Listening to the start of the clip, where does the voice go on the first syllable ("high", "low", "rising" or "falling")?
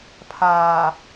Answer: low